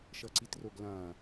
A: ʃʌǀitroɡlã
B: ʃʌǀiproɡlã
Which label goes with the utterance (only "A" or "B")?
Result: A